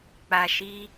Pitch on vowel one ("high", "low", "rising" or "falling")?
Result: low